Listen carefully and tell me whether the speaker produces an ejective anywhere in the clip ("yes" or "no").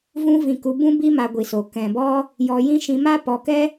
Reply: no